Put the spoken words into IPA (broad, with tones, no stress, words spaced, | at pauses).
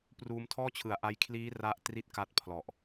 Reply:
pruː˧mtʰɔː˥˩ t͡ɕʰɯ˩˦a̯ʔa˦˥j kʰliː˦˥ ra˥˩ʔ tri˥˩t̚ka˦˥t̚pʰlɔ˨˩ʔ